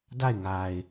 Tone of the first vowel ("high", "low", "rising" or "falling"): falling